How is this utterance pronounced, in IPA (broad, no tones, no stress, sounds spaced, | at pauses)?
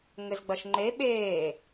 ŋ ɘ z ɡ͡b ɐ ʃ ŋ͡ǃ e ɓ eː